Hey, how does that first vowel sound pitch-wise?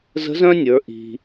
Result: rising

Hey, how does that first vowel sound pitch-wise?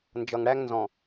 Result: low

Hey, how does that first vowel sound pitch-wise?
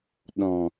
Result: low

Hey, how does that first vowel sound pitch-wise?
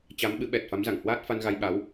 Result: rising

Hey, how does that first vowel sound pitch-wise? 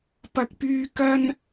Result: high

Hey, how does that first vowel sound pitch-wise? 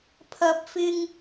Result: rising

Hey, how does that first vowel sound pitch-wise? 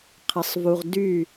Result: rising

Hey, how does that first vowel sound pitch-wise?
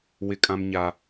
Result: high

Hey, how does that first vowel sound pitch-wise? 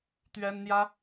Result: high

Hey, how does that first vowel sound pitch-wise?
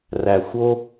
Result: low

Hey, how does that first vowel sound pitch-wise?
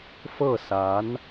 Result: falling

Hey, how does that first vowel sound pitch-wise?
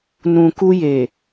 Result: low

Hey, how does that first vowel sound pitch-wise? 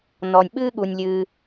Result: low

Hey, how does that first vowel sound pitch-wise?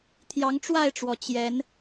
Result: rising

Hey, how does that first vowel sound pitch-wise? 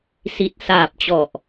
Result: low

